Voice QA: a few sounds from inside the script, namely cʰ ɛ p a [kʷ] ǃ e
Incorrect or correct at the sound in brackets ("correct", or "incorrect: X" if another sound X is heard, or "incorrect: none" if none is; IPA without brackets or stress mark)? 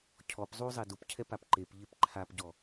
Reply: incorrect: p